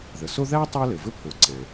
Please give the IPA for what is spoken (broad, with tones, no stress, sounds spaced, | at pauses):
ð ə˩ s o˥ ð æ˥ tˤ æ˥ l ɘ˩ v ɘ˥ pʰ o˩ ǀ æ̃˩